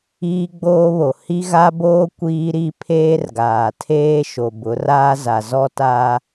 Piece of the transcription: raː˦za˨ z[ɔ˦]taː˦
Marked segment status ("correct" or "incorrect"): correct